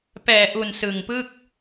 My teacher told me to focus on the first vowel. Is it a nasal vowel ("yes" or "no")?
no